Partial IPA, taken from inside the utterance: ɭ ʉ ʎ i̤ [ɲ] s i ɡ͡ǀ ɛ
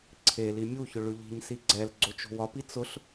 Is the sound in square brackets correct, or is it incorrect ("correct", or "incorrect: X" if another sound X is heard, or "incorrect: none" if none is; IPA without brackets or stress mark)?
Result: correct